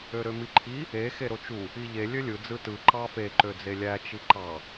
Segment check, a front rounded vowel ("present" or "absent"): present